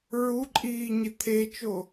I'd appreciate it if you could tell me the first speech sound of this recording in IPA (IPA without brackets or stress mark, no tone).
ɹ